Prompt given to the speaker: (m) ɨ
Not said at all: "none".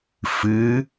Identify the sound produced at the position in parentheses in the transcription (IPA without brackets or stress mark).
f